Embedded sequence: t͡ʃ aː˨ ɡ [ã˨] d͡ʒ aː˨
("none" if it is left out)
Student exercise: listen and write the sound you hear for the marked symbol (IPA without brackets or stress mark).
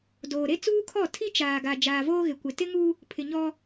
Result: a˨